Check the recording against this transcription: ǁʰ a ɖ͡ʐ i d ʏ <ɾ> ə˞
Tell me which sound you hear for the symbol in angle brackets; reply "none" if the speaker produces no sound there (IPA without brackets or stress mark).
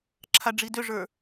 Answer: ʐ